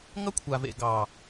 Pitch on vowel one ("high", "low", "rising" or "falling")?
high